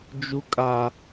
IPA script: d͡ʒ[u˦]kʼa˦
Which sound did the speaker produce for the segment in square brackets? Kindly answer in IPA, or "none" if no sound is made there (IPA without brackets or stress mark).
u˦